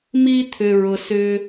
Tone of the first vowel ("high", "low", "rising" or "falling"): high